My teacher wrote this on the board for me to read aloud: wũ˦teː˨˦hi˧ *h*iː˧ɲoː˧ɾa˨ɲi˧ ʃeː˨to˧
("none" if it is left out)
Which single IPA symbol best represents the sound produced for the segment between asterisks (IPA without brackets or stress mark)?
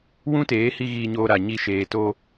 ɣ